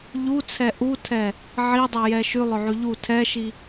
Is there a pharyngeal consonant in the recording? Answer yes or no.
yes